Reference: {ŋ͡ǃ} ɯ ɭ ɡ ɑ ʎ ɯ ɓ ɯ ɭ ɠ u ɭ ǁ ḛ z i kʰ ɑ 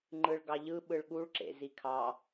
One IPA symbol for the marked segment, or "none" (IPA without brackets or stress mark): ŋ͡ǃ